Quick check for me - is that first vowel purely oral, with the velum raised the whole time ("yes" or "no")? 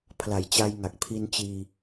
yes